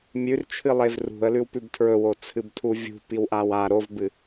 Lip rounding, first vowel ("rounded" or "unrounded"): rounded